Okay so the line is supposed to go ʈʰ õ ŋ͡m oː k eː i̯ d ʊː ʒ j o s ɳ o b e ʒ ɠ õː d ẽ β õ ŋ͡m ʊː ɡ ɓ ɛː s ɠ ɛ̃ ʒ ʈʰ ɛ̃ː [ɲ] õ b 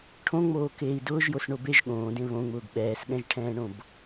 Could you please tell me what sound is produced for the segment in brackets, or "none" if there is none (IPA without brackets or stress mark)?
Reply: ɳ